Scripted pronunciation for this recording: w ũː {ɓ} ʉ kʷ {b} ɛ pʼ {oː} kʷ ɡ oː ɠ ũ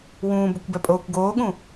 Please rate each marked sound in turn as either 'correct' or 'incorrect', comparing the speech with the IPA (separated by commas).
incorrect, correct, correct